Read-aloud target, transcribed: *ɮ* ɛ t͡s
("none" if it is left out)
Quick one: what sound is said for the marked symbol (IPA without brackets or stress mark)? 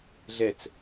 ɮ